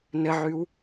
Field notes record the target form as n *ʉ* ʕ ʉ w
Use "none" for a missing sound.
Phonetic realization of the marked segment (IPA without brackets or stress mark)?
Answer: ə